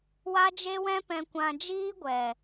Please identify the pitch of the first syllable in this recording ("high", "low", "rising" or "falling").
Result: high